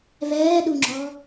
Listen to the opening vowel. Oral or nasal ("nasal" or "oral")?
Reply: oral